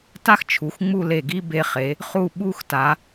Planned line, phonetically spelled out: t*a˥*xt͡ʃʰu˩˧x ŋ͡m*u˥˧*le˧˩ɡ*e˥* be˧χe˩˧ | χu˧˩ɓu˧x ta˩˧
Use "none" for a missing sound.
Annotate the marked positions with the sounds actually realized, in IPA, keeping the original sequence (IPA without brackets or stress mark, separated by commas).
a˥, u˥˧, i˥